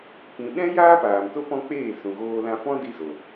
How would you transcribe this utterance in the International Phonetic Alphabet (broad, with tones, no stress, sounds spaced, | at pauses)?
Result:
p ĩ˨ ɗ ɛ̃˦ j aː˦ p aː˨ m t o˦ p ɔ̃˦ k͡p eː˦˨ s ũ˨ ɣ oː˧ l ã˧ f ɔ̃˦ d i˧ z o˨